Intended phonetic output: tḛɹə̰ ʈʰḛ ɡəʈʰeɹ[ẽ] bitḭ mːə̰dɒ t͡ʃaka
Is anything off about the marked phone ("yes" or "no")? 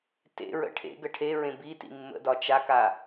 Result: no